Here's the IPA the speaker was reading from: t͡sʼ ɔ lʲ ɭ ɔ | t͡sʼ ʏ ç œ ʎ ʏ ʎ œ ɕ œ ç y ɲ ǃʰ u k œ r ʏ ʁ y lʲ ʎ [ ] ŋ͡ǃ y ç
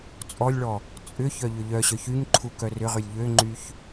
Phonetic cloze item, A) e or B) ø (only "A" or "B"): B